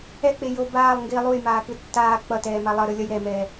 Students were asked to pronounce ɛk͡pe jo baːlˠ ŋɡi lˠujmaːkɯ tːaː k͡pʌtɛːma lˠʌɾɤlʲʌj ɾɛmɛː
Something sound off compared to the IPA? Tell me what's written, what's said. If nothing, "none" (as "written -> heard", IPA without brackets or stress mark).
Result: ɤ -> ɯ